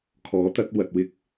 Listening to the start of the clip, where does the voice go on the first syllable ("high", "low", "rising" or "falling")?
rising